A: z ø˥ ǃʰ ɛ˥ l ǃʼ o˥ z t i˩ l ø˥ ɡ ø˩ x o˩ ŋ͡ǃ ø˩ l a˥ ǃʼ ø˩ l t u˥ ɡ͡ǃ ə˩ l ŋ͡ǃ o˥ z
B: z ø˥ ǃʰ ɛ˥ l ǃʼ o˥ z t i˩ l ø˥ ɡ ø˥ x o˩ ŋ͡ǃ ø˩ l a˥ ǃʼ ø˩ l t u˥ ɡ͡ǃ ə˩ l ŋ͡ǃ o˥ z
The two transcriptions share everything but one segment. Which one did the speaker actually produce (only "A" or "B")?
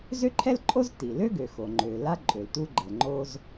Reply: A